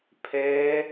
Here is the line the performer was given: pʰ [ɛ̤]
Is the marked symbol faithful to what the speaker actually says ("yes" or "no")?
no